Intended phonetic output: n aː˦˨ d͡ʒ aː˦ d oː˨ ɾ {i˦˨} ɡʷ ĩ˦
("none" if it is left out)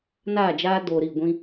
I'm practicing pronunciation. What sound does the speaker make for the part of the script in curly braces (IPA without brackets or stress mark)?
i˦˨